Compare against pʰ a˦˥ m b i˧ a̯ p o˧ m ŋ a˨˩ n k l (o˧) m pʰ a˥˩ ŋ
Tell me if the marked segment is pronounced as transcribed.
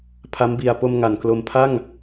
yes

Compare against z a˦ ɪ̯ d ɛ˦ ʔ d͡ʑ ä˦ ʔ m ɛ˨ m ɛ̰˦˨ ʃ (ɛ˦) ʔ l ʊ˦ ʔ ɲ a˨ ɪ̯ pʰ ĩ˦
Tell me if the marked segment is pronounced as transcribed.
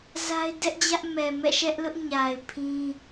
yes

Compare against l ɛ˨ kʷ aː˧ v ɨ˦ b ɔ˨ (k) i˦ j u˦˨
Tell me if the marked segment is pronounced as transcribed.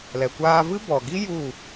no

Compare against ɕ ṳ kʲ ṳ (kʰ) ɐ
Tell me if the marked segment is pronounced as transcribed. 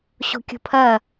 no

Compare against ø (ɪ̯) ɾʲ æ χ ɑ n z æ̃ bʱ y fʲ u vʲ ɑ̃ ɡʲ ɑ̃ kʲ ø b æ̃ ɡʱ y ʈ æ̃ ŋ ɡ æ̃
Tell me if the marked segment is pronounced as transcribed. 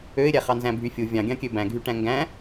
yes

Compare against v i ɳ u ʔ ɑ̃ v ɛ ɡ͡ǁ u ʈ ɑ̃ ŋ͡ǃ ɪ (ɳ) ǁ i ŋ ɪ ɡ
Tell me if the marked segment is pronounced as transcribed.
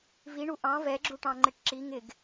no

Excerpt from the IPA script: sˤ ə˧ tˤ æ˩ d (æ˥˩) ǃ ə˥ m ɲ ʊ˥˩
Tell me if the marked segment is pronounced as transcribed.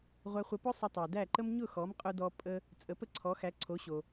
yes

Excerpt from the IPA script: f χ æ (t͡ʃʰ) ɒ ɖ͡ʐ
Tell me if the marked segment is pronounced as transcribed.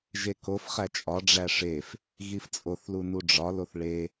no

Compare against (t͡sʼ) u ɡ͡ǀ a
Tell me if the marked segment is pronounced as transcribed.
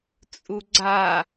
yes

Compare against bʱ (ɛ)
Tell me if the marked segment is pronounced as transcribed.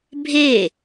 no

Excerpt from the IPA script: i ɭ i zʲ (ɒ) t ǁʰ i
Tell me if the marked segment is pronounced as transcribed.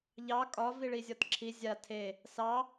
yes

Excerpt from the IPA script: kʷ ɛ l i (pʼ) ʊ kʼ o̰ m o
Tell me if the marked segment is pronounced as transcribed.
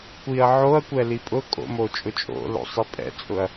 yes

